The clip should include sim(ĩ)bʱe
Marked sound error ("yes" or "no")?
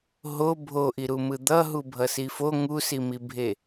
yes